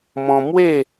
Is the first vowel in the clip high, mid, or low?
mid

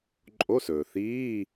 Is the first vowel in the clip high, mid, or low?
mid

